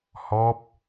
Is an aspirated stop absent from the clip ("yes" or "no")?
yes